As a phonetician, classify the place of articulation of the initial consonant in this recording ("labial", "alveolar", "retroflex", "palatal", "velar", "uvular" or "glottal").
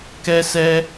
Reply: velar